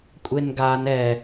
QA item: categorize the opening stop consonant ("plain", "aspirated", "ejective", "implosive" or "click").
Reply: ejective